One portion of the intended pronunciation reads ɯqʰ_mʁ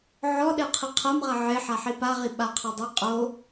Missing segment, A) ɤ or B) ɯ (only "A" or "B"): A